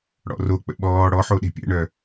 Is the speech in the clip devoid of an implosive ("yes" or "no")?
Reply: no